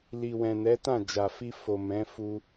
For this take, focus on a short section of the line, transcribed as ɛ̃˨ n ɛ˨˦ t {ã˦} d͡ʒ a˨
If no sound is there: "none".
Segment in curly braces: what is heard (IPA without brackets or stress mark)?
ã˦˨